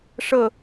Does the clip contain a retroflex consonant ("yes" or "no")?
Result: yes